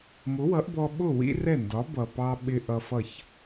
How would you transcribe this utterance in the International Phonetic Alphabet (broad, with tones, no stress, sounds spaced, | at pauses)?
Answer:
m ʊ˩˥ w ʌ˩˥ ʔ b ɔ˧ ɓ ʊ˥˩ w ḭ˥ r ɛ˥˩ n d ɒ˩˥ b ʌ˩ p ɑ˧ ɓ ɪ˧ ʔ ʌ˧ f ʌ˥˩ ç